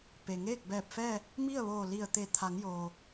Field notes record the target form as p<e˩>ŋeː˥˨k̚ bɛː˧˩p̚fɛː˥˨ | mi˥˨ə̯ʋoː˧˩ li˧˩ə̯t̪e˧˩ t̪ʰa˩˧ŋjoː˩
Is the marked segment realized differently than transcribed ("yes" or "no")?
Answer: no